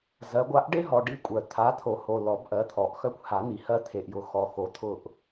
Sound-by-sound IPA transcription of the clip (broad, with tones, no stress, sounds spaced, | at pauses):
z ɜ˨˦ ɡʷ a˨˦ ʔ ɖ e˦ ɦ ɔ˨ ɖ i˦ kʷʼ œ˨ t̪ʰ a˨˦ t̪ʰ o˨˩˦ h o˨ l ɔ˨˩˦ b ʔ ɜ˨˦ t̪ʰ ɔ˨˩˦ ʔ x œ˦ kʷ h a˨˩˦ n̪ i˨ h ɜ˦ t̪ʰ e˨ ʔ j ʊ˨˦ x ɔ˨ x o˨˦ t̪ʰ ʊ˦˨ ʔ